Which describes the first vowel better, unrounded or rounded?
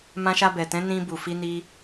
unrounded